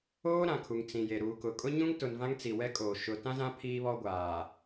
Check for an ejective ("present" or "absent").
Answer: present